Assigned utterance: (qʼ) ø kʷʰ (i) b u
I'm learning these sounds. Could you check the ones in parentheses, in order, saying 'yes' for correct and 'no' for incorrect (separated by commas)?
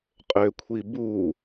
yes, yes